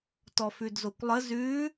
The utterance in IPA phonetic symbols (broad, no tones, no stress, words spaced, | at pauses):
tɔfʉdzokʷlˠə zʉ